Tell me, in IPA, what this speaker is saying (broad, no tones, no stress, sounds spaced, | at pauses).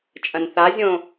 t͡ʃʼ ɐ̃ n θ a zʲ õ